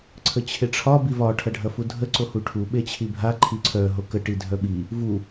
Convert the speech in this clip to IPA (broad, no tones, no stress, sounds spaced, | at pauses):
ǀʰ ə t͡ɕʰ e ʈ͡ʂʰ ɒ b i v ɒ ʈʰ ɐ ɖʱ ɐ f u dʱ ə ǀ o h u ʈʰ u ɓ e t͡ɕʰ i bʱ a ǃʰ i ǀʰ œ ɦ o k ə ʈ i dʱ œ ɓ i | v u